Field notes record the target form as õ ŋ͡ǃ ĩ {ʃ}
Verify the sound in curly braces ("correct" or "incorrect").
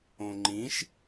correct